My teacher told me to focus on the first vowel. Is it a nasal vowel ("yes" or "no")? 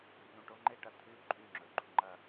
yes